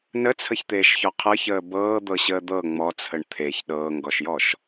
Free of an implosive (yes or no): no